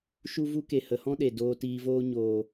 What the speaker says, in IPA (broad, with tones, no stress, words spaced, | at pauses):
ʃu˦vu˦ke˨ hə˨˦hɔ̃˦ɗe˨doː˧ tiː˧voː˦ ɲoː˨